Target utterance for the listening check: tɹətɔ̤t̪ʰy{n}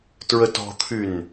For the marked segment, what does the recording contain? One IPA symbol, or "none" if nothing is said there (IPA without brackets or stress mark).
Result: n